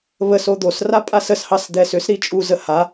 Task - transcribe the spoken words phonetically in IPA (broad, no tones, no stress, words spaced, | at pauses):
βəso d̪osra pʼasəshɑs d̪ɛsʏsɾi t͡ʃʼuzə ha